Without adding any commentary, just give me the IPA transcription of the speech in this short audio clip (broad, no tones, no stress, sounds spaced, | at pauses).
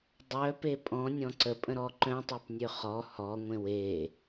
dˤ œ p e pʼ ɔ̃ nʲ ɔ̃ ǀ ə pʼ ə̃ ɾ ɔ ǃ œ̃ tˤ y p nʲ ø χ ɔ h ɔ ŋʷ ẽ w e